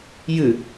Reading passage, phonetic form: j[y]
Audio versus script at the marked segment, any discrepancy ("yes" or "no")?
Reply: yes